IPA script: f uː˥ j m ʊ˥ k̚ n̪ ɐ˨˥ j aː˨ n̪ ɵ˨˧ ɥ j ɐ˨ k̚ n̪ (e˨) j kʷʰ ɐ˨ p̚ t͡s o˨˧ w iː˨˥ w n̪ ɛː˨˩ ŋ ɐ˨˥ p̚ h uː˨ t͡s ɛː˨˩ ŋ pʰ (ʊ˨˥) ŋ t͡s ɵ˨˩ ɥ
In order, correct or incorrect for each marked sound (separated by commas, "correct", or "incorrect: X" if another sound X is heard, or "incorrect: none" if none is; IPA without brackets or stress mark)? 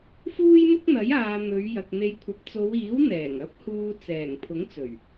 correct, correct